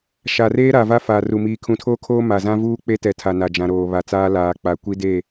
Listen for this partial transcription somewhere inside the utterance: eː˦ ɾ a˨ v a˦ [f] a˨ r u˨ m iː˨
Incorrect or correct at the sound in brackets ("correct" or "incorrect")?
correct